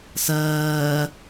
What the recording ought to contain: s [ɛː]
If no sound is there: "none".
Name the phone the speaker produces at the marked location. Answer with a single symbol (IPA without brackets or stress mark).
ɜː